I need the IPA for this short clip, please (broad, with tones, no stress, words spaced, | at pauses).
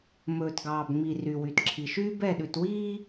mɵː˨tɡɑː˨bŋ͡mi˨ ry˨wy˨tǁʰi˨ ʃyː˦bɛ˦˨ɗʉ˨twiː˦